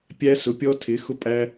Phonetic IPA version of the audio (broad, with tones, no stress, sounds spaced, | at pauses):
pʲ æ˥ s ʊ˧˥ pʲ ɔ˥ tʰ ɪ˧˥ x ʊ˥ pʼ æ˥